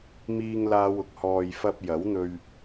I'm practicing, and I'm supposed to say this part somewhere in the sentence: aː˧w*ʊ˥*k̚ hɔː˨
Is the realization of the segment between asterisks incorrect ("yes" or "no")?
yes